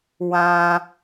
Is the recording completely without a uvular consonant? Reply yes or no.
yes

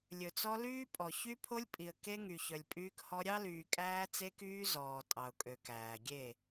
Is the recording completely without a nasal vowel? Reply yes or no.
yes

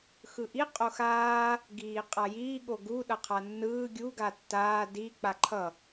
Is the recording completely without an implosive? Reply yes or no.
no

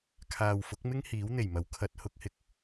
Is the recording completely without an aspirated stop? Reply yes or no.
no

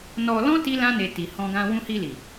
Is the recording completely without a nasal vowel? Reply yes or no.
no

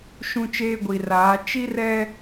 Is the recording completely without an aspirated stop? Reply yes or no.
yes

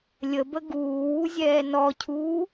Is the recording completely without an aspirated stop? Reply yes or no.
no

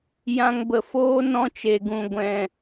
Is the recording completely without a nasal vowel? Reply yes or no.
no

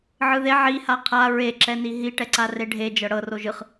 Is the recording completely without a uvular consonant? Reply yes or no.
no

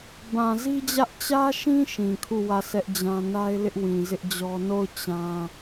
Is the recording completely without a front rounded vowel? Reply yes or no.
yes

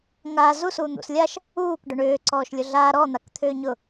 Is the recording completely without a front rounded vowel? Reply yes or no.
no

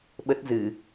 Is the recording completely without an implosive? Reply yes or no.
no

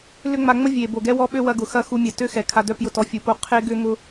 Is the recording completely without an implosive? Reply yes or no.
no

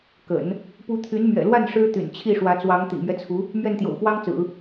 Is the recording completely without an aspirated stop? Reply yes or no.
no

